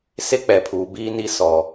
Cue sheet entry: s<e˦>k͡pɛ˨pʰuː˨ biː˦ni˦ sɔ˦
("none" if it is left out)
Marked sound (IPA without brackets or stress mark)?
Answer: e˦